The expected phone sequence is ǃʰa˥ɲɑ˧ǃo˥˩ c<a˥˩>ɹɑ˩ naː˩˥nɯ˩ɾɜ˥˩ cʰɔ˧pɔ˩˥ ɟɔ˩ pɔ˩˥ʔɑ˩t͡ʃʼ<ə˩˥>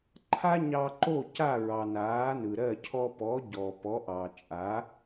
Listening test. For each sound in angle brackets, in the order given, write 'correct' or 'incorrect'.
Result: correct, incorrect

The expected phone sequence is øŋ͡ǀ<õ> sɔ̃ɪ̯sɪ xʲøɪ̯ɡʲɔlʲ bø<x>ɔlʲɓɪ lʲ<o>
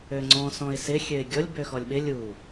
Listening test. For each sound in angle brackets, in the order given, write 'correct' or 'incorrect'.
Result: incorrect, correct, incorrect

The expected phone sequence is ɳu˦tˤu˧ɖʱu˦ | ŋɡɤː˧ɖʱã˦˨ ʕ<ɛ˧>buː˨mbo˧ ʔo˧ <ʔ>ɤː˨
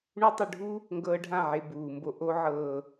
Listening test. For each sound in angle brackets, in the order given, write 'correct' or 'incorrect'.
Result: incorrect, incorrect

